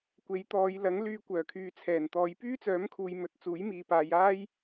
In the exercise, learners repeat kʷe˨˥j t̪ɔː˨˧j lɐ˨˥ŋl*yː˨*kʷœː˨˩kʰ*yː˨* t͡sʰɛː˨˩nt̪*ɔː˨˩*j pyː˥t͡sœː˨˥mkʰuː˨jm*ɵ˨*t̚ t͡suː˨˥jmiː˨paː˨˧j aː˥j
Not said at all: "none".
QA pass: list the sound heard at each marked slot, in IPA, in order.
yː˧, yː˨, ɔː˨˧, ɵ˨

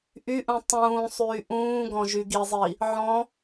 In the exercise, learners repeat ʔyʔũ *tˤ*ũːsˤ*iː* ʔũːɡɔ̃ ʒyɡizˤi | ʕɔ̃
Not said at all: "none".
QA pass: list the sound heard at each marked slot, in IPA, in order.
tˤ, yː

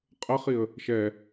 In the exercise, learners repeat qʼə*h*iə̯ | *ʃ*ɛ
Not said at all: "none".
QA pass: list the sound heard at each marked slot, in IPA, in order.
χ, ʃ

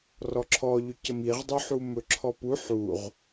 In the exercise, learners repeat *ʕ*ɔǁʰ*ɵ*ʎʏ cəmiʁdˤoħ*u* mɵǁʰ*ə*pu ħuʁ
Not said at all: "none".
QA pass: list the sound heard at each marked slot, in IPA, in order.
r, ɔ, u, ɔ

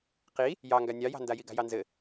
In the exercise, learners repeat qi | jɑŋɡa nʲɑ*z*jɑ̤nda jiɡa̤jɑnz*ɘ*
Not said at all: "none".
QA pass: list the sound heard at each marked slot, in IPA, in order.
none, ɘ

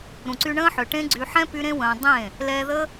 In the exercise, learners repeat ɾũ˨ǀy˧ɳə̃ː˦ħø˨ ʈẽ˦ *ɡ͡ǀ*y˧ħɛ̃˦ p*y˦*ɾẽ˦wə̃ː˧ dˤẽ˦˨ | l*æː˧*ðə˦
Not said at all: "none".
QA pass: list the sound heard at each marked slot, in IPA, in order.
ɡ͡ǀ, y˦, ɛː˧

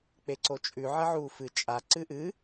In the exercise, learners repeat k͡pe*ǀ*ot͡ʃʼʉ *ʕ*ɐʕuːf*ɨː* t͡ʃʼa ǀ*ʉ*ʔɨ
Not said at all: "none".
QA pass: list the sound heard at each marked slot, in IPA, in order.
ǀ, ʕ, ɨ, ɨ

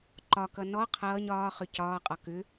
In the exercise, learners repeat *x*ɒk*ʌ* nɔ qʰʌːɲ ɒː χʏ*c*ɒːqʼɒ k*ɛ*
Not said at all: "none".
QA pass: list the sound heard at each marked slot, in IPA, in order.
ǃ, ʌ, c, ʏ

